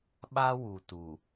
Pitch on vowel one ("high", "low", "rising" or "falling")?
high